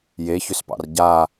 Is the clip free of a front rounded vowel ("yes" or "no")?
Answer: no